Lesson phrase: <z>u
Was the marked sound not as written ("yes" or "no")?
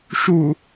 yes